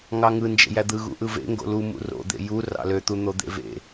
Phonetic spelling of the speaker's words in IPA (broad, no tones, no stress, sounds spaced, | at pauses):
ŋ ɑ ŋ ɯ n d͡ʒ ḛ j æ d̪ ɯ ɣ ṵ ʔ ɯ v ḛ ŋ ɡ o̰ l u m ṵ r o̰ d̪ ḛ j u r ɑ̰ l ø t̪ u n̪ o d̪ ḛ v ḛ